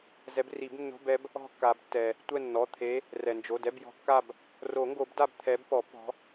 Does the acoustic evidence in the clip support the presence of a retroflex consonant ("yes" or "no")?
no